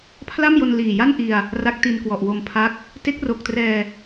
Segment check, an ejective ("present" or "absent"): absent